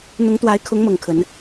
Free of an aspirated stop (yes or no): no